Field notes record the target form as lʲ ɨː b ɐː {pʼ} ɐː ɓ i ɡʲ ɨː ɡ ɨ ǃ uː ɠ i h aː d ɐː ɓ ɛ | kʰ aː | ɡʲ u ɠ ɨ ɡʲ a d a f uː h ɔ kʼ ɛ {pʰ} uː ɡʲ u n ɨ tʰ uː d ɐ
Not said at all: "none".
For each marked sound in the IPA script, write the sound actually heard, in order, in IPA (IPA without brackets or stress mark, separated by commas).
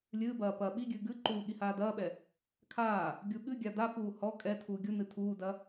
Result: p, tʰ